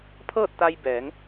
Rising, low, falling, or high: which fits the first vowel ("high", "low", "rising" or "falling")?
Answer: falling